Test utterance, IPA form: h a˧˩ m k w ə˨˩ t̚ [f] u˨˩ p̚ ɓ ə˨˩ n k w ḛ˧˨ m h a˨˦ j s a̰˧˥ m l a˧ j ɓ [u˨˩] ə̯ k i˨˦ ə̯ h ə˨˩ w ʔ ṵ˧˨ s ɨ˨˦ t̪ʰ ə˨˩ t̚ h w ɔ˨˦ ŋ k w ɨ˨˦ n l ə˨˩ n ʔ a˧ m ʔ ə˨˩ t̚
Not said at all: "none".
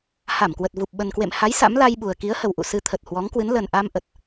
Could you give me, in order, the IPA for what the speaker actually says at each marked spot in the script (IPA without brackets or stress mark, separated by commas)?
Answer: v, u˨˩